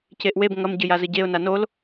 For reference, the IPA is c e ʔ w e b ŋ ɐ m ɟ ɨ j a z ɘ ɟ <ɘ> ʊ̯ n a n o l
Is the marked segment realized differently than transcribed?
yes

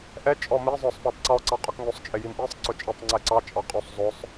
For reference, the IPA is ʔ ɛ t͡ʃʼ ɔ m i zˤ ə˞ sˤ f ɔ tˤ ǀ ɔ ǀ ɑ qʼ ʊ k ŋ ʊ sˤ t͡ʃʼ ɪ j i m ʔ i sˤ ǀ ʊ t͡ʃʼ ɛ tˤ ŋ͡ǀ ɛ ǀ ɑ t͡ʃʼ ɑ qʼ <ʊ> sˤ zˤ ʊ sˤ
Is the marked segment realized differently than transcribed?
yes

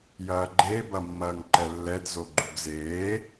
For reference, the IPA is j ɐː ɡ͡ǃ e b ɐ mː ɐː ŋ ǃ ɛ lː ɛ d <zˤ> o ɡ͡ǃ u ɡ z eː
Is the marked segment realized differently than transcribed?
yes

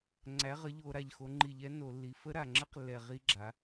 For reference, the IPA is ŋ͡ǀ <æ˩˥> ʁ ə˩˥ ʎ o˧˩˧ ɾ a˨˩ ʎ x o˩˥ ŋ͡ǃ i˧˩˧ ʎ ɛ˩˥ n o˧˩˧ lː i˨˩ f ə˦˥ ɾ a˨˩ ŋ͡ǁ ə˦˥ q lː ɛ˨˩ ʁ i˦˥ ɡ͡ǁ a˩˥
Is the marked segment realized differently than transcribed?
no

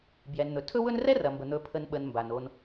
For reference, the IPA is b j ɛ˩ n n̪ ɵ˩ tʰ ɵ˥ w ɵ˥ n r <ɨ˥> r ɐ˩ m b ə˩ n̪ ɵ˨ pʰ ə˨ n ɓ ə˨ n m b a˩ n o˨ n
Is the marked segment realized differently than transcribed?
yes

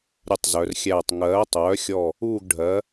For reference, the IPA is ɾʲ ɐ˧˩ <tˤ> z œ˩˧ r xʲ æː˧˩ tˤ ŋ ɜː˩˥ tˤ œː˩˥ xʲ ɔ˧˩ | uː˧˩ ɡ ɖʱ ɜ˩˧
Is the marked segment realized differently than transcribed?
no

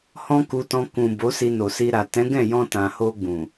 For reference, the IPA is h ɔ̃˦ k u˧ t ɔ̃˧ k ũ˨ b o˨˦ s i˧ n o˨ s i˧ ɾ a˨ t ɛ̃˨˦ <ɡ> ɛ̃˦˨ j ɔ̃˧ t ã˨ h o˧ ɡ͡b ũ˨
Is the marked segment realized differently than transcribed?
no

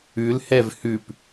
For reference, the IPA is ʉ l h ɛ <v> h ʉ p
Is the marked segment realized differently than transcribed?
no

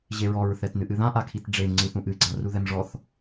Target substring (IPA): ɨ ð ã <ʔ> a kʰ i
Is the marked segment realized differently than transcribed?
no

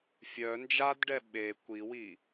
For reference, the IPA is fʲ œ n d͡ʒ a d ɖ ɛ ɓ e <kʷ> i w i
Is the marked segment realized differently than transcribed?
no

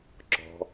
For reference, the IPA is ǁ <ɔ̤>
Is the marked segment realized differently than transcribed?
no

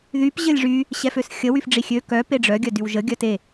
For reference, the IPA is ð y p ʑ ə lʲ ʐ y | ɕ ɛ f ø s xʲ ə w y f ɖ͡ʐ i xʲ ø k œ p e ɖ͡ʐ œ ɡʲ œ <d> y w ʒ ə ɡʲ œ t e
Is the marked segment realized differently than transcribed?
no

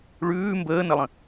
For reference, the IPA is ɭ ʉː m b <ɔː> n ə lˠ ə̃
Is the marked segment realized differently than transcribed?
yes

